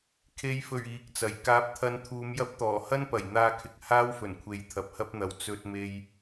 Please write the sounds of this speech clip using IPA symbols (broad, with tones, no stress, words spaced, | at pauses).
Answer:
kʰe˨˧jfɵ˨˩ɥ iː˨k̚t͡sɐ˨˩j kaː˧p̚ t̪ʰɐ˧nt̪ʰuː˨˧m jɐ˧p̚t̪ɔː˨˩hɐ˥npɐ˨˩j n̪aː˧kʰɪ˨k̚ haː˥wfɵ˨˩nkʷʰe˨˧j t̪ʰɐ˨p̚hɐ˥p̚n̪ɐ˨w t͡sɵ˧t̚me˧j